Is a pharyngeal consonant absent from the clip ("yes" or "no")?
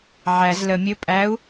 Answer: no